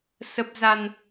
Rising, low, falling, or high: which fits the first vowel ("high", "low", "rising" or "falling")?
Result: low